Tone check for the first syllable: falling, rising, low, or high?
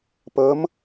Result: rising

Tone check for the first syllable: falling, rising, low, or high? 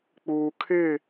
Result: low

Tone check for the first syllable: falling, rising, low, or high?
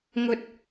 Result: high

